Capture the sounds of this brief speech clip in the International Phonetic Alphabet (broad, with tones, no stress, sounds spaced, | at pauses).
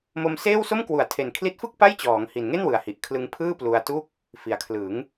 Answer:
m o˧ m s eː˥˩ w s o˥˩ m k w u˩˦ a̯ tʰ e˨˩ n kʰ l i˦˥ t̚ f ɯ˥˩ k̚ p a˥˩ j t͡ɕ ɔː˩˦ ŋ h i˨˩ n ŋ e˥˩ n w ɯ˨˩ a̯ h i˨˩ ʔ kʰ l ɯ˧ ŋ pʰ ɯː˥˩ p l u˧ a̯ t u˥˩ k̚ | f i˨˩ a̯ kʰ l ɯ˩˦ ŋ